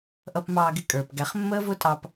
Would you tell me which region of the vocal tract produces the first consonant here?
throat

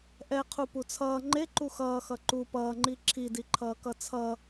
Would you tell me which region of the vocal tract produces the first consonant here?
throat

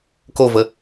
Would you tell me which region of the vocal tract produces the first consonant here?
velum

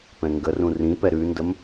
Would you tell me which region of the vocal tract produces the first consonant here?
lips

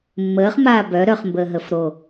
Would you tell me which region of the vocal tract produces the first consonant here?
lips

